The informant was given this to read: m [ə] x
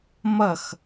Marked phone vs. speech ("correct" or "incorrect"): incorrect